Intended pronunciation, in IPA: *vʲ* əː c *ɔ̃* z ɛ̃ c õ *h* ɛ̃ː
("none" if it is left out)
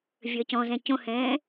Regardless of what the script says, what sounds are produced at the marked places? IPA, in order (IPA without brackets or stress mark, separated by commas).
vʲ, ɔ̃, h